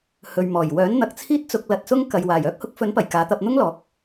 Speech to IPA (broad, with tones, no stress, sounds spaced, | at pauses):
h ɵ˨ ɥ m ɔː˨˩ j w œː˨˥ n n̪ ɐ˨ k̚ t͡sʰ iː˥ t̚ t͡s ʊ˧ k̚ l ɐ˧ t̚ s ʊ˥ ŋ k ɐ˨ j w aː˨˩ j œː˥ k̚ h ʊ˨˥ k̚ f ɵ˨˥ n p ɐ˨˩ j k aː˨˧ t̪ ɐ˧ p̚ n̪ ʊ˥ ŋ l ɔː˨˥ k̚